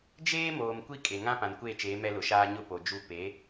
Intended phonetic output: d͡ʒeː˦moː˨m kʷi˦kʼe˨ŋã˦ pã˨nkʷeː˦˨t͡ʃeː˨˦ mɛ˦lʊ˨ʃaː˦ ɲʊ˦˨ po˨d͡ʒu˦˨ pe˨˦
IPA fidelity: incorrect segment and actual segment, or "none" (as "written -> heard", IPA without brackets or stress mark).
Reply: none